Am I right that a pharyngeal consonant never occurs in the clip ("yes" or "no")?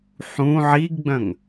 no